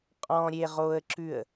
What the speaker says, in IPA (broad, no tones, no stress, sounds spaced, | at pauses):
qʼ ɔ̃ ɾʲ e ʁ o ə̯ ǁ ʉ ə̯